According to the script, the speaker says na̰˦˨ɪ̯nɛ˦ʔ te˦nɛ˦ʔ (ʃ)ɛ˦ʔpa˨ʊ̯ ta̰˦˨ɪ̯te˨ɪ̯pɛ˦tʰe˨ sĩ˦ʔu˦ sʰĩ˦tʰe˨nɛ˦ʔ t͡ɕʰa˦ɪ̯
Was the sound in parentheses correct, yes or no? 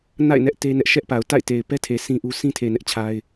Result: yes